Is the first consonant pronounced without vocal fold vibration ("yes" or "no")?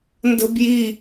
no